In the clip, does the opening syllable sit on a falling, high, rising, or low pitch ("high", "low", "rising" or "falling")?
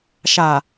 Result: low